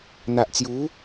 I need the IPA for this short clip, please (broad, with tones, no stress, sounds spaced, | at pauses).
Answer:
n̪ a˨ ʔ t͡s j u˨˦